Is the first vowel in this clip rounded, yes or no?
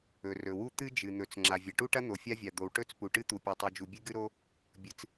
yes